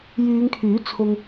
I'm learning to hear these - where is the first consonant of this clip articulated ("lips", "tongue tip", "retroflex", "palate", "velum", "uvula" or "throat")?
palate